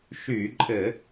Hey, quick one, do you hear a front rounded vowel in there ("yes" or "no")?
yes